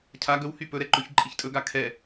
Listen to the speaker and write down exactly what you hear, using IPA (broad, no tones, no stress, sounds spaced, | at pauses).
cʰ a ɡ ɵ w h y p ɵ ɾ ɛ ǃ ɵ ç ǃʼ i ç tʼ ɵ ɡ a kʰ ɛ